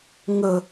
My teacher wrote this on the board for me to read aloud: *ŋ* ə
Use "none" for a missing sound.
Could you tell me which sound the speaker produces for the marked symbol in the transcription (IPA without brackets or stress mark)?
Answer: ŋ